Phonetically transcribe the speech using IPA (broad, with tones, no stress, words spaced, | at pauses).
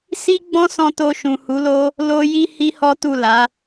si˦ɡ͡bɔ̃˦sɔ̃˧ to˧ʃũ˨hu˨˦lo˦ | lo˦ji˦hi˦ hɔ˦tu˦˨la˨˦